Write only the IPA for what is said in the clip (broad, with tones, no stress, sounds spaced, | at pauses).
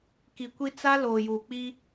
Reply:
k i˨ kʷ i˦ t͡s a˦ l oː˨ j uː˨ k͡p i˦